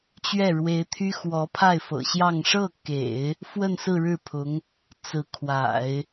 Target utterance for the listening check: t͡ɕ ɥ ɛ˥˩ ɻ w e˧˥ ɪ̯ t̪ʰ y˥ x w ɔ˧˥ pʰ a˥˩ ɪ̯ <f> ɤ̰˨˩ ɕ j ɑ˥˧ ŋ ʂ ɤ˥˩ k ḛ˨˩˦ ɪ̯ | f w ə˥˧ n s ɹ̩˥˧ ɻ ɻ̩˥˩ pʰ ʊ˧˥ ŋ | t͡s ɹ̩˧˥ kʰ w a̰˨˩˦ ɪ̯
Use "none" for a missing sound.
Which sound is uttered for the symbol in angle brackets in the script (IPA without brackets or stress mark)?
f